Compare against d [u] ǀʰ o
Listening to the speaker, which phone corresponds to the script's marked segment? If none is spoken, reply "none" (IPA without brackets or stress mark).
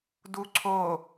u